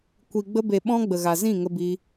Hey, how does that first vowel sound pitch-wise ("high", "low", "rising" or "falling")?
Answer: low